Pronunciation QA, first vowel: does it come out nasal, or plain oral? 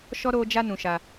oral